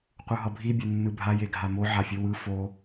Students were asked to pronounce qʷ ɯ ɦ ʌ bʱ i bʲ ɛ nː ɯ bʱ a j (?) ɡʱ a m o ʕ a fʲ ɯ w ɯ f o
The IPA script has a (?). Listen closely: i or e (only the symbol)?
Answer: e